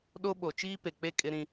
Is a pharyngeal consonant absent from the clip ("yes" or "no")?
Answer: yes